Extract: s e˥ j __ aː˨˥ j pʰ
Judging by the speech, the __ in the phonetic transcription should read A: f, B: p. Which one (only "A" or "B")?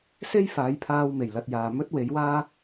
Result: A